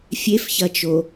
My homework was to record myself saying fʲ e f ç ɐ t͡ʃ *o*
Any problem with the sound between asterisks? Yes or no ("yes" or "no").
no